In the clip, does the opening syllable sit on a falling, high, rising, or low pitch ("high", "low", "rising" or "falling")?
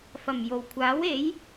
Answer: low